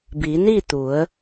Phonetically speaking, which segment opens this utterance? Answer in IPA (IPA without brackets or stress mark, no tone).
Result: b